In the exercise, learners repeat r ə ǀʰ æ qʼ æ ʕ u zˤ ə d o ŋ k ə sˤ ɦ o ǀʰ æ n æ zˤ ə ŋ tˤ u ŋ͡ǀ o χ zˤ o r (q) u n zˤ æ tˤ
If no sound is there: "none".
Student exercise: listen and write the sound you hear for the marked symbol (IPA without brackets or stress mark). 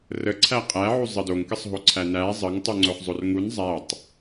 ŋ